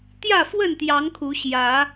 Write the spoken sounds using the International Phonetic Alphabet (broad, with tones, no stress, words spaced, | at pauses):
t̪jä˥˨fwə˥˨nt̪jɑ˨˦ŋ kʰu˨˦ɕjä˨˦